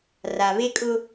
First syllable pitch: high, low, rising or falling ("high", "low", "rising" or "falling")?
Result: low